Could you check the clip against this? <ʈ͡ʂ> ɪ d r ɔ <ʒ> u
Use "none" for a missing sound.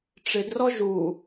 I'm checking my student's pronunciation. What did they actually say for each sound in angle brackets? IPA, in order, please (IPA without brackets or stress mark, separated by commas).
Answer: ʈ͡ʂ, ʒ